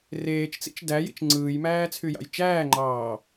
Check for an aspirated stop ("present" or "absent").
present